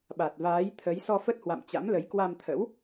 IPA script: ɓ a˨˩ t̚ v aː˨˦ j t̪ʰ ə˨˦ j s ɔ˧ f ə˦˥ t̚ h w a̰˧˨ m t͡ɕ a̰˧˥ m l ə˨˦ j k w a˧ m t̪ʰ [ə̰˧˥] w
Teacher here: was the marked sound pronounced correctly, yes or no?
yes